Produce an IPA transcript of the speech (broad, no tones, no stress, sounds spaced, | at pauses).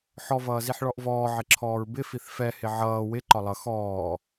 ħ ɔ v ʌː z i ħ ɭ ɔ ʔ v ɔː ʕ ɪ ǁʰ ɔː ɹ b ɪ f i θ f ɛ h ɪ ʕ ʌː w ɪ ǃ ɒ lˠ ʌ x ɔː